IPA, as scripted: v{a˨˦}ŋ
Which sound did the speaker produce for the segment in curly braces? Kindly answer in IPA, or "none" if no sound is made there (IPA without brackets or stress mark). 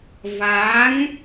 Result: a˨˦